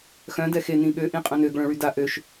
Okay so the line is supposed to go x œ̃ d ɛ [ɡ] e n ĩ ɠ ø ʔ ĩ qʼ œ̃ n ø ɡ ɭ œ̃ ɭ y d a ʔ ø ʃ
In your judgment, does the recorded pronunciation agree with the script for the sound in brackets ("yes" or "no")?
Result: no